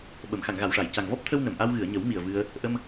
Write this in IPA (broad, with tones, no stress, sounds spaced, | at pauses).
ɓ ə˨˩˨ m x a˨˩˨ ŋ ɣ a˨˩˨ w ʂ a˨˩˨ j c a˨˩ ŋ v ɔ˦˥ p̚ t̪ʰ ə˧ w n ə˨˩˨ m ʔ a˧ w ɣ ɨ˨˩˨ ə̯ ɲ ə˨˩˦ w m i˨˩ ə̯ v ɨ˧ ə̯ | ʔ ə˧ m